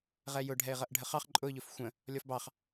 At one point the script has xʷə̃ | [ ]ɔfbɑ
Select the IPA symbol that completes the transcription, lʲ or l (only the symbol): lʲ